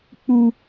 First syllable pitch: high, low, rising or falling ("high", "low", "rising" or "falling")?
high